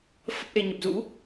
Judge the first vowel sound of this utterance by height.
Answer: mid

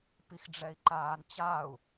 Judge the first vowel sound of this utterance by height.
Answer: high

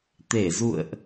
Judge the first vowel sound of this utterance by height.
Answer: mid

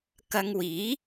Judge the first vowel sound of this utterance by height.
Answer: low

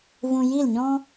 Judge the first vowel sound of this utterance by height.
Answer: high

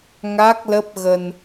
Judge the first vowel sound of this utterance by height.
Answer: low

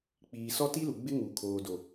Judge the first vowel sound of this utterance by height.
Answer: high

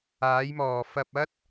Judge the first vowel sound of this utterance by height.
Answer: low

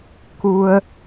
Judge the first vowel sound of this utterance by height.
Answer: high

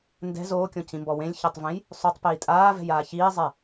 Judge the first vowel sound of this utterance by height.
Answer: mid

